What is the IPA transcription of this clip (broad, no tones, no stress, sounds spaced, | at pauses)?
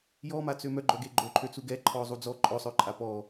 j ɔ m a t͡s ø m œ ɡ͡ǃ œ ɡ e ɡ͡ǃ o ǃʰ ø t͡s u ɡ ɛ ǃʰ ɔ zˤ u d͡z ɔ ǃʼ ɔ sˤ œ ǃʼ a p ɔ